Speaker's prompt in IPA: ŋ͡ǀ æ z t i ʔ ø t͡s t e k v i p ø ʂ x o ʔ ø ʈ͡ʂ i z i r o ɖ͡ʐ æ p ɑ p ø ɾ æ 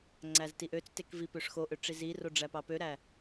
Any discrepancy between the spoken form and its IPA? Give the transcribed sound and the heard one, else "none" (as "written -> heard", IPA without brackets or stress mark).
none